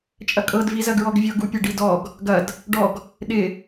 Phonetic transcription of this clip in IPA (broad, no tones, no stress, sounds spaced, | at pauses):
t͡ʃʼ ɐ kʼ ɤ d v i z ɐ ɡ ɹ ɔ ɡ vʲ ɤ ɡ u pʲ ɐ ɖ i d ɔ ɡ | ɡ ɐ d | ɖ ɔ ɡ | ɗ ɪ